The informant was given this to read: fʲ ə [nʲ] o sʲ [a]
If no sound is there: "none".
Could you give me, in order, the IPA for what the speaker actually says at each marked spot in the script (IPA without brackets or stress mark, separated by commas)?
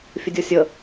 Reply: dʲ, ə